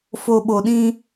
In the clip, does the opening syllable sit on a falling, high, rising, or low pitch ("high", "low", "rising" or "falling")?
low